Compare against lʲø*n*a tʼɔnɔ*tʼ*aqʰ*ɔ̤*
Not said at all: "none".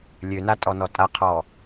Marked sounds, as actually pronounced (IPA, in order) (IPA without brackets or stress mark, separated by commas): n, tʼ, ɔ